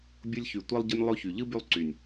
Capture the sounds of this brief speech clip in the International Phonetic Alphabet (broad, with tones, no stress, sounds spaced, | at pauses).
bʲ ʊ˧ lʲ ç y˨ tʷ ɛ˧ lˠ ɟ ə˧ nʲ lˠ o˦ ç y˨ ʎ ɯ˦ b y˧ lˠ ǀ y˨ nʲ